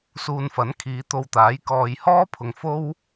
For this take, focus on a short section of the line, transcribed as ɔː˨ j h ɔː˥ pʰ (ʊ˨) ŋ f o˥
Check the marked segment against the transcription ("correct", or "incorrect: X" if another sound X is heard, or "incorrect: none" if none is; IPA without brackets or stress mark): correct